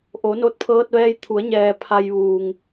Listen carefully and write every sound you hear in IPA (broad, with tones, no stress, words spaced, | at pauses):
ʔo˩˧no˧t̚pʰɤː˧t̚ʋɛː˧j t̪ʰu˩˧ə̯ɲɛː˩ pʰa˧jʋuː˩ŋ